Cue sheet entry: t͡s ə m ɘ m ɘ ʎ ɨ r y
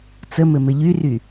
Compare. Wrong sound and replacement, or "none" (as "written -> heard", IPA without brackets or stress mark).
ɨ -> y